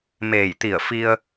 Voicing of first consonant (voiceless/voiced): voiced